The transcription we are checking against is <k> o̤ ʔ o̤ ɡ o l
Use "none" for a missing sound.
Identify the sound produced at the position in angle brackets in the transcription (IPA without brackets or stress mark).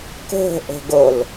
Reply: k